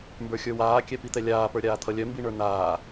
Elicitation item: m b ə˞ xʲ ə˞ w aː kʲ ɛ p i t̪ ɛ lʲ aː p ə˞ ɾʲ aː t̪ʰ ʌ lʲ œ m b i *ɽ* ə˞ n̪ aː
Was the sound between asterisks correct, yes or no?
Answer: no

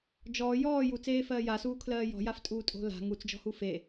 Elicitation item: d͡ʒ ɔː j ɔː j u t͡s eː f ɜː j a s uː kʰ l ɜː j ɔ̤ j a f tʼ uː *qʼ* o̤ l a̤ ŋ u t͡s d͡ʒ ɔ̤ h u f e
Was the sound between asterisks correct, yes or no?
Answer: no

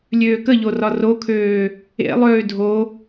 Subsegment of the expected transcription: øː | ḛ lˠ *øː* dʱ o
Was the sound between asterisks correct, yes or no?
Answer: yes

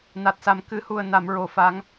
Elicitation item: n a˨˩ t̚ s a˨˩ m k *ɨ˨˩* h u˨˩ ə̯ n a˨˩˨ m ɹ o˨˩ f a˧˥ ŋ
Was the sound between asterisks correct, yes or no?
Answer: yes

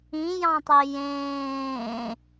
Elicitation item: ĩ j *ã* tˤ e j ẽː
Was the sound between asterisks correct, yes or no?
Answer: no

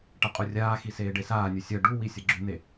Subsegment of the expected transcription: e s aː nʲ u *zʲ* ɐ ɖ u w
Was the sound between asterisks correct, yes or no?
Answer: no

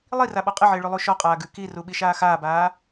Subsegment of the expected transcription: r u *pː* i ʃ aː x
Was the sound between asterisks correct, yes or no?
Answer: no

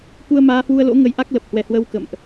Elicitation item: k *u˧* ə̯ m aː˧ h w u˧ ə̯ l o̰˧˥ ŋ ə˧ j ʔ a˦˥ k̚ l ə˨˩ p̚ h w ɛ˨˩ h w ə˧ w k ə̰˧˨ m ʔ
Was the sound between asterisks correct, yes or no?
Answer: yes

